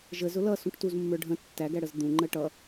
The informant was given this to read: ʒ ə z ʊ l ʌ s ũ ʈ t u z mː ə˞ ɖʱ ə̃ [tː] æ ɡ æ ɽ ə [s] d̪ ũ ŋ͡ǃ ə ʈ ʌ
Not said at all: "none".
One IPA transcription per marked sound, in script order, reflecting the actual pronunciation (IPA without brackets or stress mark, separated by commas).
tː, z